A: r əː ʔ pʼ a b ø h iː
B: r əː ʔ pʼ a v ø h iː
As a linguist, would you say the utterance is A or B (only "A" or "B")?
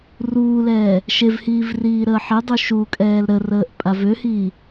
B